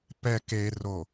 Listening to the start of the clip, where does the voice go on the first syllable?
low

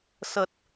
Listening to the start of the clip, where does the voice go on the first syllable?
low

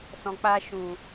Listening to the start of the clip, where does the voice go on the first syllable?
low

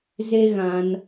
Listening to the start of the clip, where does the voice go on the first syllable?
high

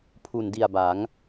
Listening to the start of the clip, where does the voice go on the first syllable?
low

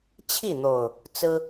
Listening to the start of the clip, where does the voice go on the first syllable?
falling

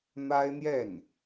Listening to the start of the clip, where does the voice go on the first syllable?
high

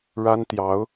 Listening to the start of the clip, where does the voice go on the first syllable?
high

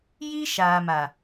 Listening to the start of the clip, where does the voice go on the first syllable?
high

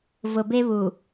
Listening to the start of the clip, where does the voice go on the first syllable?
low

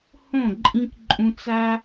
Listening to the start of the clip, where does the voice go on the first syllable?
falling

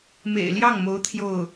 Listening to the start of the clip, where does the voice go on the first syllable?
low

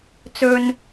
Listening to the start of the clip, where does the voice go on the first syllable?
low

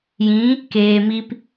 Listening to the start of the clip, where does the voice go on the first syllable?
rising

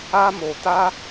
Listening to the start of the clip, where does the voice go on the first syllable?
high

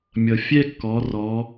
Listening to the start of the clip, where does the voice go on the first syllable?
low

